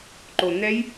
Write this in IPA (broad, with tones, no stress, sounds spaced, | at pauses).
ǃ o˨˩ n̪ ɛ˦˥ j